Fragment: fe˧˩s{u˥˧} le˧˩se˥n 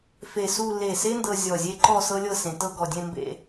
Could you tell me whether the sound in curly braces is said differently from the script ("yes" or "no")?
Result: no